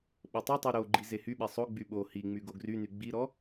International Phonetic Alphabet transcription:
ɓ o tˤ i tˤ y ɾ o ɡ͡ǃ i z e h y ɓ ɛ sˤ o ɡ͡b y ɓ o h i ŋ͡m y ɡ o ɡ r y n y ɡ͡b i ɾ ɔ

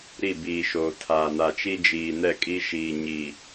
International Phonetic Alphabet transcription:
ɾ i˦˨ b iː˨ ʃ oː˨ tʰ aː˨ n a˨ t͡ʃ i˦ d͡ʒ iː˨ n ɛ˦˨ kʼ i˦ ʃ iː˨ ɲ i˨

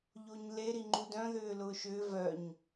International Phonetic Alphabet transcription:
ʎ o ɲ l e ɾ i ŋ͡ǃ u d œ̃ ð ʏː l ʊː ʃ ʏː v œ ɲ

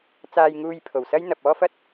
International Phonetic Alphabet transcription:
t͡s aː˧ j ŋ uː˧ j pʰ o˨˩ w s ɐ˥ j n̪ ɐ˨ p̚ ɔː˥ f ɐ˥ t̚

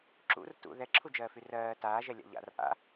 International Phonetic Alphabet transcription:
ǁ ṵ r t ṵ ð ɛ ǁʰ u d͡ʒ ɜː f y r ɜː t aː ʒ ɛ lʲ a̰ ʎ a̰ r ʔ a̰

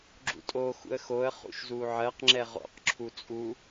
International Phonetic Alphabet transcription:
ɡ͡ǁ ṵ tʼ o x ṵ ə̯ x o ə̯ χ ṵ ʃ z u ʕ ɜ q ŋ͡ǁ ɛ ʁ o̰ q ǁʰ u t͡sʼ u

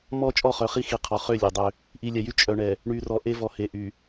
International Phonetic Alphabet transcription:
m ɔ˦ t͡ʃʼ ɔ˦˨ χ œ˨ χ i˦ x i˨ qʰ ɔ˨ χ ø˦˨ lʲ e˨ dˤ ø˦ | ʔ i˨ lʲ ɛ˨ j y˦ t͡ʃʼ œ˨ ɳ ɛ˨ | ɳ y˨ r ɔ˨ ʔ e˦ v ɔ˨ h e˨ ʔ y˨

